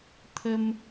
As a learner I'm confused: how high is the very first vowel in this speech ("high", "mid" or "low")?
mid